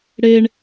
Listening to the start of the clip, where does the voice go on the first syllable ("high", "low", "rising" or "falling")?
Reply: high